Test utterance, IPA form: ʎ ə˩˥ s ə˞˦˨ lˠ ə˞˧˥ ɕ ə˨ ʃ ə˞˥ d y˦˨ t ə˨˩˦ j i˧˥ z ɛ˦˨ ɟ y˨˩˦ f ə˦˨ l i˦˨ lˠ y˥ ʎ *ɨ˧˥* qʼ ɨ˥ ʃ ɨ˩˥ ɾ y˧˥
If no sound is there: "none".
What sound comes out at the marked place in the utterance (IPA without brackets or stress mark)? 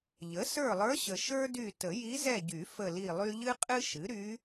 ɨ˥